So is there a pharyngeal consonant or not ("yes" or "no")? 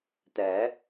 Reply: no